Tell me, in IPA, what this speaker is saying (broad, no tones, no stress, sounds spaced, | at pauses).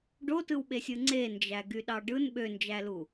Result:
ɖ o t ɯ w ɓ e sʲ ɯ ŋ͡ǀ e n d͡ʒ æ ɡ y ɗ ɑ ɖ ɯ n ɓ ø n d͡ʒ æ l u